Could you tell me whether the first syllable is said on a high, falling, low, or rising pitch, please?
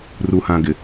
low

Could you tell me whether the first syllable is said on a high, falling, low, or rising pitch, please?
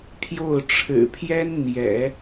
falling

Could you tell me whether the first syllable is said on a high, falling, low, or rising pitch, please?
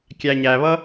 low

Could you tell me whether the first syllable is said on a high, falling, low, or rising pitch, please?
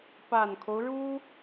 low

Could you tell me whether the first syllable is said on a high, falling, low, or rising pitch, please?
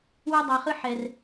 high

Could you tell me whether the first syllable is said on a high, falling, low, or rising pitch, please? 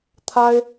high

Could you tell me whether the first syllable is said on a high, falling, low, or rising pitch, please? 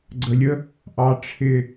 low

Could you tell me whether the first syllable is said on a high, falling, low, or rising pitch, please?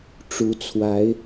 rising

